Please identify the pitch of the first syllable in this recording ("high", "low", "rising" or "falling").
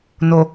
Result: low